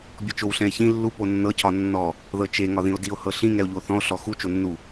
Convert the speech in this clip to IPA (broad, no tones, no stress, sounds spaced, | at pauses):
bʲ ɔ t͡ʃ o w ɬ ɛ̃ e̯ ç ĩ lː u p o nː ɤ cʰ ɒ nː ɔ | ð ɤ t͡ʃ e ŋ ɒ ð ĩ o̯ d i o̯ h ɤ ɬ ĩ ŋ ɛ o̯ ʎ u o̯ θ ɔ̃ o̯ ɬ ɔ x u t͡ʃ o nː u